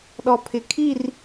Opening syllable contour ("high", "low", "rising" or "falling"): low